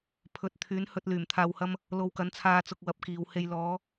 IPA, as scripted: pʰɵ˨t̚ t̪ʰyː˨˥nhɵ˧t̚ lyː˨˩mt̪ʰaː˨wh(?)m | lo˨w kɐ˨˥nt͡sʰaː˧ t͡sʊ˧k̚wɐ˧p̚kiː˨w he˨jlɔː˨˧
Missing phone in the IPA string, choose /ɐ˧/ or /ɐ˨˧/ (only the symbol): ɐ˧